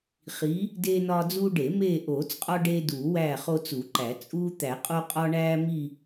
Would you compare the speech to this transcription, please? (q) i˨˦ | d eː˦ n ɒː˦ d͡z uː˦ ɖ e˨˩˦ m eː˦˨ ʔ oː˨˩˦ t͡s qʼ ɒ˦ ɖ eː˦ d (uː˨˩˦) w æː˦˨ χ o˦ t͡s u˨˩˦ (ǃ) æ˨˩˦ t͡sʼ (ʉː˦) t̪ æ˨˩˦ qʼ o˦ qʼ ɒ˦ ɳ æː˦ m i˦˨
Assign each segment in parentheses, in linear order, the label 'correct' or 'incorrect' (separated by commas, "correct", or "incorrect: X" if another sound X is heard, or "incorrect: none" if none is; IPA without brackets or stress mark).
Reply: incorrect: χ, correct, correct, incorrect: uː˦